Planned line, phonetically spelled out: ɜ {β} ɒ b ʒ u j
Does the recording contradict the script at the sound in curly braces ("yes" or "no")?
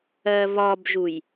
no